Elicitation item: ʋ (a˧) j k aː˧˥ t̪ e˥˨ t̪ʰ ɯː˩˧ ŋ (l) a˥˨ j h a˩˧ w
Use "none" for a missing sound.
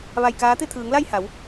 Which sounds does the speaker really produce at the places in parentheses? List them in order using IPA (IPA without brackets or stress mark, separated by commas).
a˧, l